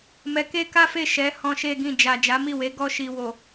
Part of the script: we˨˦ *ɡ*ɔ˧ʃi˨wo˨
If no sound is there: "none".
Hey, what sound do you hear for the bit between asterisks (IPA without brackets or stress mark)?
ɡ